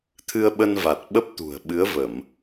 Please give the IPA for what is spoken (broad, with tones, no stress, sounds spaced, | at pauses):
t̪ʰ ɨ˧ ə̯ ɓ ə˧ n v a˨˩ t̚ ɓ ə˦˥ p̚ t̪ ṳ˨˩ ə̯ ɓ ɨ˨˦ ə̯ v ə˧˩˨ m